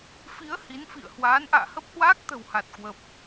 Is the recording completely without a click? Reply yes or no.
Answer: yes